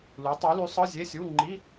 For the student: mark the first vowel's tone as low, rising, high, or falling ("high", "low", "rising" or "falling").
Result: rising